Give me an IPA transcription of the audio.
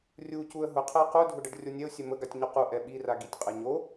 rʲ u c u ə̯ ɦ ʊ qʰ ə ɪ̯ q u dʱ ʊ ɖ ə ɖ rʲ o nʲ ɛ ʊ̯ sʲ ɛ m ə ɡ a tʲ ɲ ʊ q u ʔ ɛ ɓ i r a ɡ i tʲ qʼ ɛ ɲ o

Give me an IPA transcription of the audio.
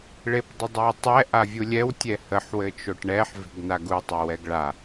ɭ e p dˤ ə dˤ a w tˤ ɛ ʔ a vʲ u lʲ ɛ w tʲ ɛ h ə ħ w ɘ t͡ʃ o ʈ ɳ ɛ ħ v e̤ ɡ n a ɡ u tˤ o w ɛ ɡ ɭ a

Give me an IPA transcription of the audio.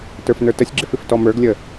t ə˞ f n ə˞ t ə sʲ ɡ͡ǁ ɪ f ɪ f t ɔ m ə˞ ɡ lʲ ə

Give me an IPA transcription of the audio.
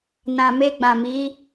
n ã˨ m e˧ ɡ͡b ã˨ m i˨˦

